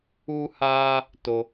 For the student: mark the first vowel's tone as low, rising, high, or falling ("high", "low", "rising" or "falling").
high